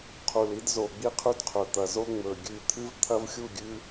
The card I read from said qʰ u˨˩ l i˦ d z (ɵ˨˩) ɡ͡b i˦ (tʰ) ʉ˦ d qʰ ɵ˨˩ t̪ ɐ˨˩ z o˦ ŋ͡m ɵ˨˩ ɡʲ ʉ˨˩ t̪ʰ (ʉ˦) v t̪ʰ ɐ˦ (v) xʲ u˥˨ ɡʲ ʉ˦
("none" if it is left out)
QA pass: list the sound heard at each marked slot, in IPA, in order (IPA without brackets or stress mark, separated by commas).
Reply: o˨˩, qʰ, ɨ˦, v